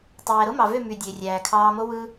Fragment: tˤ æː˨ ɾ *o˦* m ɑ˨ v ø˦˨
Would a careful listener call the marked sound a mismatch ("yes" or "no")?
no